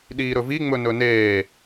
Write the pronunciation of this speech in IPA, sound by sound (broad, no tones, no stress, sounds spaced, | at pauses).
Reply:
ɗ iː ɾ ɵ v i ŋ͡m ɵ n ɵ n eː